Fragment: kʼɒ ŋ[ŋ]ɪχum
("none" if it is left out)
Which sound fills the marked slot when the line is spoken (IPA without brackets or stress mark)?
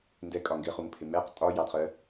ɡ